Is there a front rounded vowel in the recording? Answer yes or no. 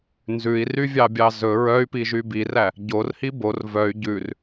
yes